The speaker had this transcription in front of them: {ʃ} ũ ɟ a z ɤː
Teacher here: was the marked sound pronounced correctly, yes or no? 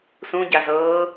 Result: no